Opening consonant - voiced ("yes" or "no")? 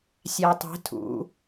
no